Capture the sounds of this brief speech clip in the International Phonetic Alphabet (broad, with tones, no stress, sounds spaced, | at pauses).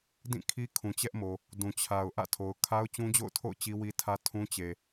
d ĩ˦˨ kʰ i˦ kʰ ũ˨ t͡ɕ ɛ˦ ʔ m o˨ | d ũ˨ t͡ɕʰ a˨ ʊ̯ ʔ ä̰˦˨ tʰ o˨ ʊ̯ kʰ a˦ ʊ̯ t͡ɕ ũ˦ d͡ʑ o̰˦˨ ʊ̯ tʰ o̰˦˨ ʊ̯ t͡ɕ i˦ w i˦ tʰ ä˦ tʰ ũ˦ t͡ɕ e˨